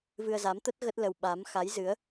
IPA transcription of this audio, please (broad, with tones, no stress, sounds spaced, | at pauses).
v ɨ˧ ə̯ z a˨˦ m t̪ ə˦˥ t̚ ɣ ə˦˥ t̚ l ə˧ w ɓ a˨˦ m x a˨˦ j z ɨ˨˦ ə̯